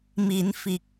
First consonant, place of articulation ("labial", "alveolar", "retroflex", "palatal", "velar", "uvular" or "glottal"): labial